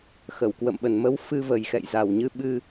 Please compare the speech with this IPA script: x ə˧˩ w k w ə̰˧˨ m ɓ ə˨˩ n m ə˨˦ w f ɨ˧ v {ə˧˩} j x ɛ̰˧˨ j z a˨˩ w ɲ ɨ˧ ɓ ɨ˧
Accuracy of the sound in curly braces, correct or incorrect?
incorrect